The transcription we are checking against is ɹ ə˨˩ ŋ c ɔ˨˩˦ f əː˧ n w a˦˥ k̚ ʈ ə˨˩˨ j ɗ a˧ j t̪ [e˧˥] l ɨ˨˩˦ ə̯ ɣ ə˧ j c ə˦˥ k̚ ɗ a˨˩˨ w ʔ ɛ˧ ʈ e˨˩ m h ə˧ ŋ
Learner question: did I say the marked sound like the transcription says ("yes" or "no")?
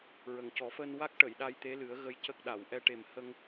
yes